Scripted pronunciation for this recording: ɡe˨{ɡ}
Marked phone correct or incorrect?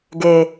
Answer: incorrect